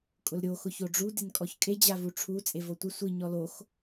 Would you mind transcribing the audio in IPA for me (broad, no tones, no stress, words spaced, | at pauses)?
kʼʊlɾʲo xʊçoɖ͡ʐu dɪnkʼɔçkʼe d͡ʑavuʈ͡ʂʰu t͡sʼevotʷɪ sʷi ɲɔlox